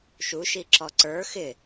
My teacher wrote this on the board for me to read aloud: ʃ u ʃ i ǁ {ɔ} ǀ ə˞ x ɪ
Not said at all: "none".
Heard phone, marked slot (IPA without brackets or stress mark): ɔ